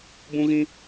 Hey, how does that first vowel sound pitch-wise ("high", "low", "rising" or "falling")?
high